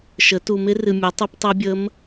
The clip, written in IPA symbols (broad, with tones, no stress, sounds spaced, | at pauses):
ʃ ə˩˥ t u˨ m ɪ˧˥ r ɨ˨ mʲ a˩˥ tˤ ɨ˧˥ p tˤ ɛ˧˥ bʲ ə˧˥ m